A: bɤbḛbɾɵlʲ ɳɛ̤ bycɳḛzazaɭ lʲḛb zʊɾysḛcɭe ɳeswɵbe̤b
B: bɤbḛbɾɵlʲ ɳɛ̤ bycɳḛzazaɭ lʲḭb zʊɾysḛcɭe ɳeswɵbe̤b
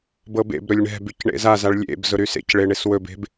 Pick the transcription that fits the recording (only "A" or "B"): A